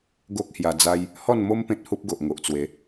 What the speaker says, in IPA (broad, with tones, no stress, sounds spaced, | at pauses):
ɡ o˦ k̚ h j a˧ d͡z a˦ j | h ɔ˥˧ n m o˦ m p ẽ˦ t̚ h u˦ p̚ ɡ o˨ ʔ ŋ o˨ ʔ t͡s w e˨˦